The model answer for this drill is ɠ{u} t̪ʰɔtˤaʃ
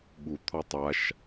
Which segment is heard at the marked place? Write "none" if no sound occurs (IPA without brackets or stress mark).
u